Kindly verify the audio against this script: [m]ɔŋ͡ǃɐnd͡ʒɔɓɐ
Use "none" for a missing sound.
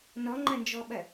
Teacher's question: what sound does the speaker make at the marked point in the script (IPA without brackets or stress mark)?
n